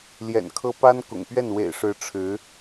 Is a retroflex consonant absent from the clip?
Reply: no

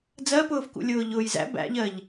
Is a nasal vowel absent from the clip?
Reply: yes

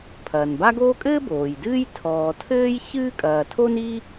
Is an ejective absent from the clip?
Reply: no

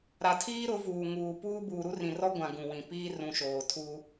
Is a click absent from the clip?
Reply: yes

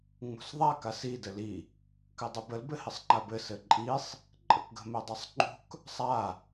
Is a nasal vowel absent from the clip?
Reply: yes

